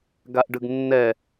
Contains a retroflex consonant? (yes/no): yes